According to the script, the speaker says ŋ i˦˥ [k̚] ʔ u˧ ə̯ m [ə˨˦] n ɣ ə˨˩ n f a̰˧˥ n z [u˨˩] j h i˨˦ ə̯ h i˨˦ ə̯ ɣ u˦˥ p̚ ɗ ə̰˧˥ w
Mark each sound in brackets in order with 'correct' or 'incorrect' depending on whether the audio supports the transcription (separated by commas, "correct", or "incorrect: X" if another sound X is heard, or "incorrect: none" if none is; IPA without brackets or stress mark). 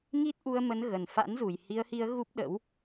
incorrect: t̚, correct, correct